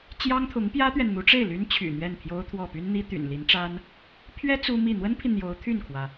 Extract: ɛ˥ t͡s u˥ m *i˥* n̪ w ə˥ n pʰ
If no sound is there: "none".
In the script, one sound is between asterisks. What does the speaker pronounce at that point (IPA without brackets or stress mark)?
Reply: i˥˩